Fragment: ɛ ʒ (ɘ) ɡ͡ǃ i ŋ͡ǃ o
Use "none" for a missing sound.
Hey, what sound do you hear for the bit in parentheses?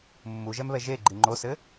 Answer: e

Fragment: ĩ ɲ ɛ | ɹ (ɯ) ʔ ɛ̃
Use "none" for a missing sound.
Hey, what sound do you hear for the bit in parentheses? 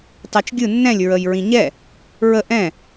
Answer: ə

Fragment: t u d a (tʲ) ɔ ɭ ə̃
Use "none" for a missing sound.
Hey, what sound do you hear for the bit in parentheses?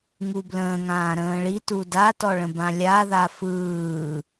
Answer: t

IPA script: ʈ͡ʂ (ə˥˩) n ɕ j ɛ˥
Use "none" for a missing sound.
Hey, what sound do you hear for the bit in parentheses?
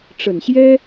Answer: ə˨˩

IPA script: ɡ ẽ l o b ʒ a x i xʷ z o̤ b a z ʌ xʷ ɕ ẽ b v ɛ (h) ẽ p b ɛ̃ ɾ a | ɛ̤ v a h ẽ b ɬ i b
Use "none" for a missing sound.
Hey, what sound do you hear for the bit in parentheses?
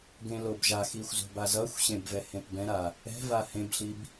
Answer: h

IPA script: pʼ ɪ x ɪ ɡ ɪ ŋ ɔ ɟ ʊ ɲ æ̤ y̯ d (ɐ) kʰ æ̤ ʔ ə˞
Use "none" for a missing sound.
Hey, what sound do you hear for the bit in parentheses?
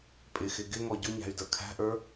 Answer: ə˞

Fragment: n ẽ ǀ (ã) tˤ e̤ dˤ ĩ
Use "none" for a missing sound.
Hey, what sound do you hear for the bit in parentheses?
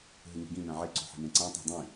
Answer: ã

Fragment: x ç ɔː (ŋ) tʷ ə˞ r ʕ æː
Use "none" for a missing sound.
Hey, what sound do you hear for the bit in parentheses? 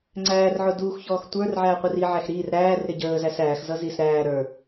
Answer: x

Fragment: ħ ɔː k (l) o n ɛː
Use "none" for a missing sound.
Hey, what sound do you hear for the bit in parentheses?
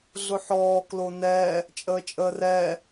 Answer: l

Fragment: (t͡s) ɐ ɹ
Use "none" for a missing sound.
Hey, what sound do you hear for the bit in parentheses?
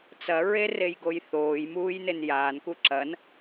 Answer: t͡s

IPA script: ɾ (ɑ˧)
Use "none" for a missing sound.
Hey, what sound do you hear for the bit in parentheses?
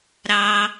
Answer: ɑ˧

